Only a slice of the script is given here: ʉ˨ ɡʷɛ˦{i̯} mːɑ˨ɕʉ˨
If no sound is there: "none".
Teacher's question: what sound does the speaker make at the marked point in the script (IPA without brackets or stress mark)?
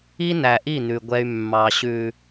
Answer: y̯